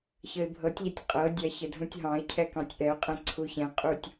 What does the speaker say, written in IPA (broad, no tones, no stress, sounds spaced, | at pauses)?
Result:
ç ə ɪ̯ bʱ ɤ tʲ ʎ ɛ tʲ qʼ ɤ dʲ ɑ ç ə dʱ ũ tʲ ɦ ɑ̃ ɪ̯ cʰ ɛ k ɑ̃ tʲ ʔ ɛ ʊ̯ qʼ ɛ̃ ǀʰ u ç ɛ̃ qʼ u tʲ